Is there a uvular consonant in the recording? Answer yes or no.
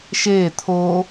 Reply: no